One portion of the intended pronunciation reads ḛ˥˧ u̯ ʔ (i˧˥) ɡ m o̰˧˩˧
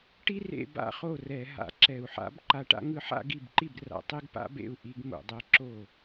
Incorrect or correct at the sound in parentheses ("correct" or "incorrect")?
correct